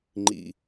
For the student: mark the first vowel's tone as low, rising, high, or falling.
low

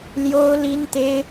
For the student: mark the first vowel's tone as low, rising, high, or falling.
high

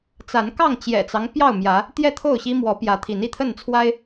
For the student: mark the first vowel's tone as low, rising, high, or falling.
rising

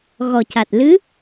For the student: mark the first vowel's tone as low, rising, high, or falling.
low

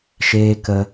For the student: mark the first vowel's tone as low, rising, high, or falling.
high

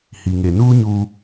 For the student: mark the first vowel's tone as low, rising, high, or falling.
low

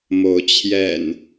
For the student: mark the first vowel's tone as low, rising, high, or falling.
rising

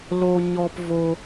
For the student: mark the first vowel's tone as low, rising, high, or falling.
high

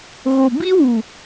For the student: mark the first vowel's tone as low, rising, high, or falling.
low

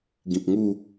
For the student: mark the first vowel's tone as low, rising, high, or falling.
low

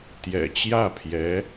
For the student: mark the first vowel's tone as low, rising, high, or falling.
low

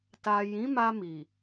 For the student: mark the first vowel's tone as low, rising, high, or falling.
low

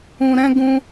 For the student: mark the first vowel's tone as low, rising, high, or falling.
high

